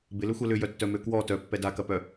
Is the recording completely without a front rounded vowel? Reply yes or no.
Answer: no